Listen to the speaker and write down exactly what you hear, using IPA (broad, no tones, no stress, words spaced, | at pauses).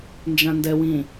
nd͡ʒãndɛwĩ